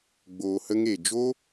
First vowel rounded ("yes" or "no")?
yes